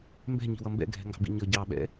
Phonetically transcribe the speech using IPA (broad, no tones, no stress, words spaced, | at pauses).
mbɛ̤ɲi̤wʌ mbɛ̰ɡʱɛ̤ŋɡɑ̤bḭ ɲʌ ɟɑɓɛ̰